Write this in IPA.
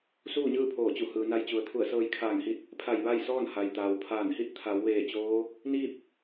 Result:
suː˥˨ɲɯː˥˨pʰoː˧˩t͡ɕu˧˩ hɯː˩na˧jt͡ɕu˩˧ə̯t̪ʰu˧˩ə̯ sɤː˧jkʰaː˧˩ŋhi˧t̚ | pʰa˧˩j ʋa˥˨jsɔː˥˨n ha˩jt̪aː˩wpʰaː˧˩nhi˥˨t̚ t̪ʰa˩˧wʋeː˧˩ t͡ɕoː˧˥ | niː˥˨p̚

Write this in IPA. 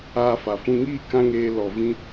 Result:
aː˧fa˨fũ˧ ŋiː˦˨ kã˦ŋeː˧ lɔ˨vĩ˧

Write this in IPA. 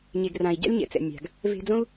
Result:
ɲe˨ɡrã˨i̯ɟa̰˦lʲ ɲɛ̰˨t͡sɛ̰˨ mʲa̤˨ɡ | ve̤˧d͡zõ˦u̯

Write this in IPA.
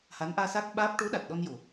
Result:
ha˧˥nʔaː˧sa˦˥k̚ɓaː˦˥p̚ ʈo˧˥ɗa˨˩t̚ ɗɔ˧n jo˨˩

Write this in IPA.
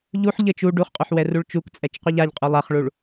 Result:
ʎuħ ʎɘt͡ʃ u ɖuχqʼuħ wɛruɭt͡ʃukt͡sʼɛt͡ʃ qʷɛʎaʎqʼu lˠaχɭuɭ

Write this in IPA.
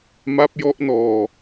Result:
ma˦˥p̚jɔ˦˥ʔnɔː˧

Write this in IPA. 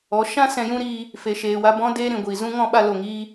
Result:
ɔ˨˦ ʃã˦ sɛ̃˧jũ˦ɾiː˧ | fe˨ʃeː˨wa˧ bɔ̃˦deː˦ ɾĩ˨ɡʷiː˨ zũ˦ ŋɔ̃˧ɓa˧lo˨ŋiː˧

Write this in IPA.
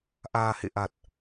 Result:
ʔaː˨˩hḛ˧˨ʔa˨˩t̚

